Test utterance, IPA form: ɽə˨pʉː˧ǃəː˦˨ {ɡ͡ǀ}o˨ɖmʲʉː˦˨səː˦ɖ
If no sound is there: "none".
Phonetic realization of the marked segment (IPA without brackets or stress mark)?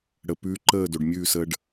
d